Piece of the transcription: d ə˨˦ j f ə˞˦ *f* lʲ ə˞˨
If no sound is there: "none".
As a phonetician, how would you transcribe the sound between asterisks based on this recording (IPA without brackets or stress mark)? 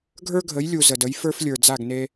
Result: f